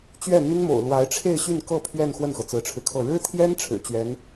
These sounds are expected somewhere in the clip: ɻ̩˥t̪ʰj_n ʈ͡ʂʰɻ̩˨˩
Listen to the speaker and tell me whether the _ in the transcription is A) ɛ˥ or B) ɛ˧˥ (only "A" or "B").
A